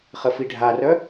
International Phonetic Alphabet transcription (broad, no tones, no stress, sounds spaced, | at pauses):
χ ə f i ɖʱ a r œ